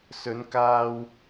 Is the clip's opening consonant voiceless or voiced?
voiceless